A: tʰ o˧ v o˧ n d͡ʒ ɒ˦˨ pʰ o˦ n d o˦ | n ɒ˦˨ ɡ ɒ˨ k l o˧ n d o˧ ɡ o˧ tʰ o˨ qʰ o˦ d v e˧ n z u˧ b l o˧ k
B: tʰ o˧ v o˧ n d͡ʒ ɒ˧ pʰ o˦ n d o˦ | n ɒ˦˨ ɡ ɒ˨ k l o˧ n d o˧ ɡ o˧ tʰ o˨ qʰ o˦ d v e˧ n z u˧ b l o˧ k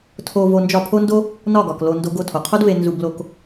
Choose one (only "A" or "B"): A